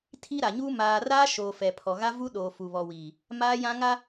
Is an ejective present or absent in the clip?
absent